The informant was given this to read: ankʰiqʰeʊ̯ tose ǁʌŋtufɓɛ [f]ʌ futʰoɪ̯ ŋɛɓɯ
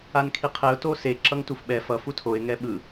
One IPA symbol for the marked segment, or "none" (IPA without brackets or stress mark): f